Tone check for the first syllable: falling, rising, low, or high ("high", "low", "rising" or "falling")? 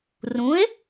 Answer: rising